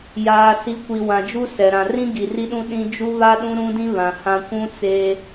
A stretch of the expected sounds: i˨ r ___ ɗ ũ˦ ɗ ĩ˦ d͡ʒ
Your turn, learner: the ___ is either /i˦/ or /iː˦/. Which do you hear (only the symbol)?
i˦